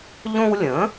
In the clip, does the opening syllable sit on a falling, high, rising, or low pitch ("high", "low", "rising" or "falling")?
high